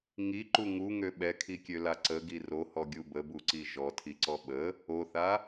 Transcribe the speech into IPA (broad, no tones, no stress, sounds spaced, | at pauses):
ŋ i ǃ u ŋ u ŋ ø ɓ ɛ kʰ i kʲ ø l a ǀ ə ɡ i r o h ɔ ɡʲ u b ə b u ǀ i ʒ ɔ tʰ i ǀ ɔ ɓ ə | o θ a